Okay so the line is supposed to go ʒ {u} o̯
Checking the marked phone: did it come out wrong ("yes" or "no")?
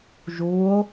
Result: no